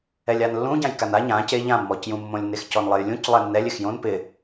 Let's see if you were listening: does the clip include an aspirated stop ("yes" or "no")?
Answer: no